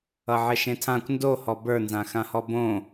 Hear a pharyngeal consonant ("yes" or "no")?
yes